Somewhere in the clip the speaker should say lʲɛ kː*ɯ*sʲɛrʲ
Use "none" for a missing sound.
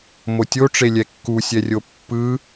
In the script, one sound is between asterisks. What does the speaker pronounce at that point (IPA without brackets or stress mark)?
u